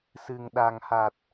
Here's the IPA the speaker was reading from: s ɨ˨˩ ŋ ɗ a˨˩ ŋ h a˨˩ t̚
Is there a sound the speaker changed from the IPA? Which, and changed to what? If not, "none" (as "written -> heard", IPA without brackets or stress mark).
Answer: none